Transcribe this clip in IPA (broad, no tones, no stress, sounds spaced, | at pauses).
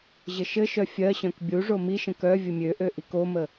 ʑ ɘ ʃ ɘ ʃ œ fʲ ɜ ɕ œ̃ k bʲ u ʐ o m i ʃ ə̃ k œ vʲ ə mʲ ø ʔ ø ʔ i k o m ə